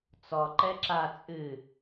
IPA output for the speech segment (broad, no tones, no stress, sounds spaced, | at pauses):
t͡s ɔ ǃ ɛ ǁ a t͡sʼ ɨ